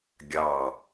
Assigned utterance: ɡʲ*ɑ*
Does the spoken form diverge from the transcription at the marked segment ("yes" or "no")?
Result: no